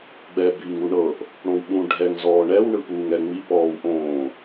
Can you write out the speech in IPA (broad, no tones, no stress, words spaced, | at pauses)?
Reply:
ɡ͡bɛ biːŋuɳɤʔ | ɽõwɓũ ɖʱɛŋ zɔːɳɛw ɳɯpuːŋɛŋ͡mi pɔːwʔõː